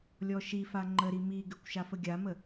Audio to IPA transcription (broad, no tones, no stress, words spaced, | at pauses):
lʲɔʃifa ŋ͡ǃəɾi miɡʉkʷ ʃafəɡʲamə